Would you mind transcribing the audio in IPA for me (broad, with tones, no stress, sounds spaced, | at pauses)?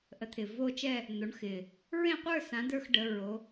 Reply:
ʔ ə˨˦ t̪ʰ ɪ˨˩ v o˥˧ t͡ʃ ɛ˥˧ | n̪ o˨˦ ɳ x ɪ˨˩ | ɹ ẽ˥˧ qʷ ə˞˥˧ s ã˨˦ d ə˞˥˧ x ɖ ə˨˦ ɹ o˨˦